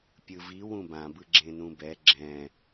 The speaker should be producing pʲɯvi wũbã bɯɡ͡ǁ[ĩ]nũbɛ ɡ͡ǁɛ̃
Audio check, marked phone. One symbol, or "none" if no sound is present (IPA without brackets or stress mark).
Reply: ẽ